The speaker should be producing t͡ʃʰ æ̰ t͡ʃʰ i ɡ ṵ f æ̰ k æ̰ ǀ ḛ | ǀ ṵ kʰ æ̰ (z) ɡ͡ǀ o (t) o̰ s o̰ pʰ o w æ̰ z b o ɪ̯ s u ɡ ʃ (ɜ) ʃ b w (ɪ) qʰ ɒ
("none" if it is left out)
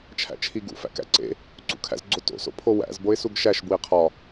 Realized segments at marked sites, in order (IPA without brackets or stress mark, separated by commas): z, t, æ, i